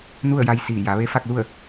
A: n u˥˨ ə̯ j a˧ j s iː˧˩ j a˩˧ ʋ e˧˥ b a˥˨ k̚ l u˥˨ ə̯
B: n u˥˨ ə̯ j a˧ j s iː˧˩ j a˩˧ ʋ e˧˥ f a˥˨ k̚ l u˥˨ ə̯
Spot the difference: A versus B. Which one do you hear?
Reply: B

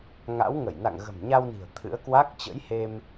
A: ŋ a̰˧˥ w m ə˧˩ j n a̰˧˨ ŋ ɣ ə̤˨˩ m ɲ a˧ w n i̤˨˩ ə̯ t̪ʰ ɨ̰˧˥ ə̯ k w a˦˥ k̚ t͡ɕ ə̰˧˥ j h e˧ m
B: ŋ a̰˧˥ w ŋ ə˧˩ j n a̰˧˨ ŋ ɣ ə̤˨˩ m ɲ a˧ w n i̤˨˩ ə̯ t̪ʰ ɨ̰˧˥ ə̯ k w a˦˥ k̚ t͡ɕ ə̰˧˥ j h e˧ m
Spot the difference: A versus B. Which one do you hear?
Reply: B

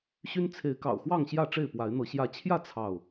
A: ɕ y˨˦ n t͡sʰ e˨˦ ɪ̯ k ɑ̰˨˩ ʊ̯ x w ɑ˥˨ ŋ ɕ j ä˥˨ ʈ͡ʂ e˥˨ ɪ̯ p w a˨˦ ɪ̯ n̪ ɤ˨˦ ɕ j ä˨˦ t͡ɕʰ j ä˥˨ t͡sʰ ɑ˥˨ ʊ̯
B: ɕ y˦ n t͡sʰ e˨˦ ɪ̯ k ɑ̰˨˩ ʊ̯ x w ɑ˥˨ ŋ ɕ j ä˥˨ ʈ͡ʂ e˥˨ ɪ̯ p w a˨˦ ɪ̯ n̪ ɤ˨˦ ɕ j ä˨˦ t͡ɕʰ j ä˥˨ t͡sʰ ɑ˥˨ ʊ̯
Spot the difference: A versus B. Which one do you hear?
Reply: B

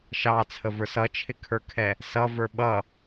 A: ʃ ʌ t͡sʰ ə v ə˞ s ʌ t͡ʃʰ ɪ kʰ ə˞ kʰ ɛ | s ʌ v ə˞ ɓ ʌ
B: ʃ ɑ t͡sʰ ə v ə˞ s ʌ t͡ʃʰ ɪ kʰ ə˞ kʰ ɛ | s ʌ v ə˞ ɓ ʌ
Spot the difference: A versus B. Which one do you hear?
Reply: B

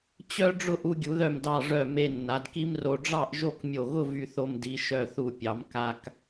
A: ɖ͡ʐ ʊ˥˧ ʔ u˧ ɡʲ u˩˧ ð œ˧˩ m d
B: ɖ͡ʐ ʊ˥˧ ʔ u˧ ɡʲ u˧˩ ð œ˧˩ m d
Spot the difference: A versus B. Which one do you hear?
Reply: A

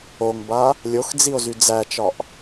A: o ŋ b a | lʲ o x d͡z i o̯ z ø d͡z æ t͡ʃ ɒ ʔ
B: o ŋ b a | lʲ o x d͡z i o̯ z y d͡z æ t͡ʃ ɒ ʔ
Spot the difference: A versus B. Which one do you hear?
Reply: B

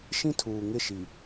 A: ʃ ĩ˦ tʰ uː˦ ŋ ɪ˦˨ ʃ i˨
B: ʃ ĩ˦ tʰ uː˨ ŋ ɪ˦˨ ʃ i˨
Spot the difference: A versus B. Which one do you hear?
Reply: B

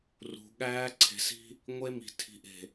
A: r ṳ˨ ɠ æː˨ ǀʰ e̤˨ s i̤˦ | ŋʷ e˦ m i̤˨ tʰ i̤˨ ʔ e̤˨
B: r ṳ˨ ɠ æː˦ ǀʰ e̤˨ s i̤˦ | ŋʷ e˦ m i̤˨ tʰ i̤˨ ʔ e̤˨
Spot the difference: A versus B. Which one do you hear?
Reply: B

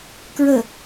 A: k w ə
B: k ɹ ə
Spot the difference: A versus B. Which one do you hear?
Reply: B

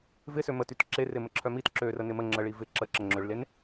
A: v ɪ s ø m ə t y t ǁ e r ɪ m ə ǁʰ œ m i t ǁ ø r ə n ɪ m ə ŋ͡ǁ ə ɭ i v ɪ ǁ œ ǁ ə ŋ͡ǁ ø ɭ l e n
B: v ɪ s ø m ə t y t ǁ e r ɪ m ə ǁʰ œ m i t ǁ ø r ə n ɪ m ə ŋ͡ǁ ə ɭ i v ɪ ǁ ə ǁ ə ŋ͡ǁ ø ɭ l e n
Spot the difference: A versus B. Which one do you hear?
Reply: B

